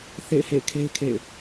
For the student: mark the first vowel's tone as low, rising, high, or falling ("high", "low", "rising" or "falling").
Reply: falling